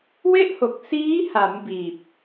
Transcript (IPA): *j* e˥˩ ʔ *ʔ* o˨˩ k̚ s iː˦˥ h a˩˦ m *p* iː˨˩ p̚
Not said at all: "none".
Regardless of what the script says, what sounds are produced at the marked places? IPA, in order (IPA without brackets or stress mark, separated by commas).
w, h, b